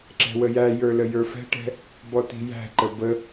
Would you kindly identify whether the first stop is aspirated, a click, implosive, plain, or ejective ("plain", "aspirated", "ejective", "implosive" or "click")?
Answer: click